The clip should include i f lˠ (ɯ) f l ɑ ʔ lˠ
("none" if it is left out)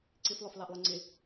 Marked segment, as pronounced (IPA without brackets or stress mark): ʊ